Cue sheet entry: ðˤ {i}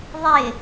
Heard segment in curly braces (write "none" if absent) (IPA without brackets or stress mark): ɪ